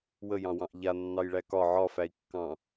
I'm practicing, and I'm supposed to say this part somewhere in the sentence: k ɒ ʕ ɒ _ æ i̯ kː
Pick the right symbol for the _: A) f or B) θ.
A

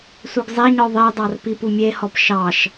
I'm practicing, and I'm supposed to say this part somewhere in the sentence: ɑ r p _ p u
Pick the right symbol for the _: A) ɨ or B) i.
B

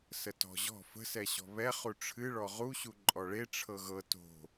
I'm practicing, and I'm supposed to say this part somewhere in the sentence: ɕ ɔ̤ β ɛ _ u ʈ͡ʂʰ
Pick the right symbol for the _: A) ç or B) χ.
B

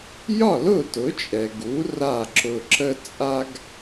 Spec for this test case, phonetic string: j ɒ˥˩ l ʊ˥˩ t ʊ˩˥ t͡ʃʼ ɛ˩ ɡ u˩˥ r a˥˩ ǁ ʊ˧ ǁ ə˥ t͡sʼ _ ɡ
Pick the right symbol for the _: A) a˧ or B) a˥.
B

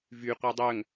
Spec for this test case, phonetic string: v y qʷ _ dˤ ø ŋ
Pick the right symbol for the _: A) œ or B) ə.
A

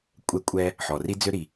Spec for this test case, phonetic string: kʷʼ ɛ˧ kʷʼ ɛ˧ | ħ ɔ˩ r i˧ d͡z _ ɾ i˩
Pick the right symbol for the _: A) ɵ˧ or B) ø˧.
B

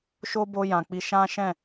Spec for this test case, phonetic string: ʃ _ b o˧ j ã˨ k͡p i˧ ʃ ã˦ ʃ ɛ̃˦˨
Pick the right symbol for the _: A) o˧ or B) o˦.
B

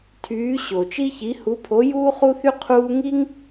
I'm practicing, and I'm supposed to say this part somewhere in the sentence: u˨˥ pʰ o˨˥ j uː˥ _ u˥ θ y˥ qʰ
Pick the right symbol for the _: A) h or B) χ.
B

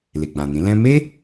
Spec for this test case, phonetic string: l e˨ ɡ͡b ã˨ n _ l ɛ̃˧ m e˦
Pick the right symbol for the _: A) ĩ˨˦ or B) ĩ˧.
A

